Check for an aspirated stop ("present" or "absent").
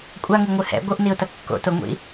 absent